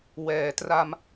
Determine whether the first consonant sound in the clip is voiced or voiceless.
voiced